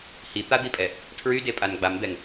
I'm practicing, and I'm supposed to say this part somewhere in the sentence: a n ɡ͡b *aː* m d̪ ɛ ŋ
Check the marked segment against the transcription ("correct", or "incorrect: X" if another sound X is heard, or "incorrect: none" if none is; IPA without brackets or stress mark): incorrect: a